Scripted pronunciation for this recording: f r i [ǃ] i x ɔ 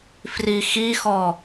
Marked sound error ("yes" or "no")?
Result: yes